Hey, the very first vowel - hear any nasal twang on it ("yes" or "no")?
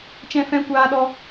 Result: yes